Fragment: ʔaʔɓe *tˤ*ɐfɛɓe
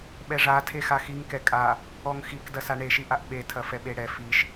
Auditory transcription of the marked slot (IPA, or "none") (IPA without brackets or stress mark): tʰ